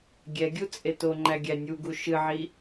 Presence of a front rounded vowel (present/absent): absent